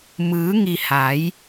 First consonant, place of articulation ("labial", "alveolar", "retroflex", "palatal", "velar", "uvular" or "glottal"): labial